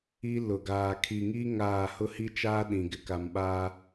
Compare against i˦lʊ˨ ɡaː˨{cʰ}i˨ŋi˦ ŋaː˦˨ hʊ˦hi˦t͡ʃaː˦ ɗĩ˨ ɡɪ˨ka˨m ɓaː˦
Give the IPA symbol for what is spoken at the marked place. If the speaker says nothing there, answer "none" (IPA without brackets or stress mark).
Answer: kʰ